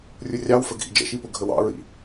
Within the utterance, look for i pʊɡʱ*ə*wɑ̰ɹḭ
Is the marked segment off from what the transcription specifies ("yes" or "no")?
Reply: no